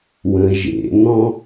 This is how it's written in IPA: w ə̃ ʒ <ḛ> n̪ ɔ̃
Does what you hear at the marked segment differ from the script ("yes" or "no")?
no